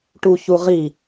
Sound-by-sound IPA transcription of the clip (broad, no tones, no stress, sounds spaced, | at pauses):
ʈ u ç u ʁ i